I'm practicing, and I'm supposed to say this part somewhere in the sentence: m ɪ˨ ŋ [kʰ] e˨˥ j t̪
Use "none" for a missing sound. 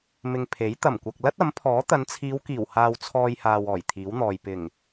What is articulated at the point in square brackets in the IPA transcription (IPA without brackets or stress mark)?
pʰ